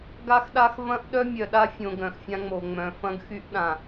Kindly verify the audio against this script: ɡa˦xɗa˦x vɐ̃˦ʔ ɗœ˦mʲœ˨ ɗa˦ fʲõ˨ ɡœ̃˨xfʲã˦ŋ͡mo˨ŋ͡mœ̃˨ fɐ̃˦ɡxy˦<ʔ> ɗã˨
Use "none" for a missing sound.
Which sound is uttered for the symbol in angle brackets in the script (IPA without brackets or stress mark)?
ʔ